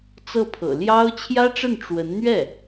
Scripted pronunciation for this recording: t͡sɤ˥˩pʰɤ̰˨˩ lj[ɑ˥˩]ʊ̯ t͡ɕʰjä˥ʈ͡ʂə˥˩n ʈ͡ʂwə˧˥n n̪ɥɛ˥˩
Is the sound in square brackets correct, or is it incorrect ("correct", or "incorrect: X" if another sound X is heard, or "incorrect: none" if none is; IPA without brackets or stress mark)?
incorrect: ɑ˥